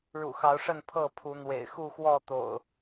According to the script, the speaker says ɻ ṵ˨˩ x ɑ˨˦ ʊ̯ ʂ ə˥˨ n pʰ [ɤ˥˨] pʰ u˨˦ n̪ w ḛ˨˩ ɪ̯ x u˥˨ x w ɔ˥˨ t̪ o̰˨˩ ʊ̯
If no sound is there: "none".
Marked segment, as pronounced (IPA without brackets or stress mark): ɤ˥˨